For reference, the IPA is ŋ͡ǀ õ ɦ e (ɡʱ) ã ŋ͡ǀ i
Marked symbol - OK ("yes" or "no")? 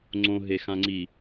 no